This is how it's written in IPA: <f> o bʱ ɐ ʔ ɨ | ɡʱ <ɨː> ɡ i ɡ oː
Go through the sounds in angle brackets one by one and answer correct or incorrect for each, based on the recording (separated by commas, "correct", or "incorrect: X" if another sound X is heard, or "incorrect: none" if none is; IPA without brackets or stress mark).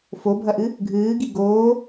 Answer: correct, correct